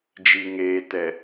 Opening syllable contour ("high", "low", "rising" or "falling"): low